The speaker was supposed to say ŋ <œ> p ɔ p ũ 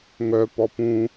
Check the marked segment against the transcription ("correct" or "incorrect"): correct